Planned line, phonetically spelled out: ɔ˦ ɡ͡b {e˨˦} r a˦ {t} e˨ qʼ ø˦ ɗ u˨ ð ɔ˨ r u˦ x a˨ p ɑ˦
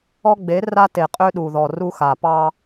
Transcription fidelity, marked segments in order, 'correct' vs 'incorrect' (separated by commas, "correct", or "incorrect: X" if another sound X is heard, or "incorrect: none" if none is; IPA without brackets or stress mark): correct, correct